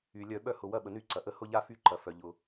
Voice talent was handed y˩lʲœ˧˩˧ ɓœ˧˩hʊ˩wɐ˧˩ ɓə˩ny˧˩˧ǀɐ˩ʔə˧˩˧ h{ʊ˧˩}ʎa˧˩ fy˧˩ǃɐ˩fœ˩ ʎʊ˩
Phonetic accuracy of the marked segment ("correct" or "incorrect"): correct